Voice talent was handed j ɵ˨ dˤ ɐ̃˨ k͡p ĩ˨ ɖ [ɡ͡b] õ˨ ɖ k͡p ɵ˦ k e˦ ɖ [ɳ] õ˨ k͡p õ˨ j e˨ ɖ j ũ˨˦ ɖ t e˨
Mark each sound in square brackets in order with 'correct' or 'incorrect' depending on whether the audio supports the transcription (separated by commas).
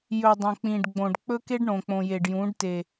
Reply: correct, correct